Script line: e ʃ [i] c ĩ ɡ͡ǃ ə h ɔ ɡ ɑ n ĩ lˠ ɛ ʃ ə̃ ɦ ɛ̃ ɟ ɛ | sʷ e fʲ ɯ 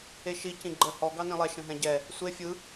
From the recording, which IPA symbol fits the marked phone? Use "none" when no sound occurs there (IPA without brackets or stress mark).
i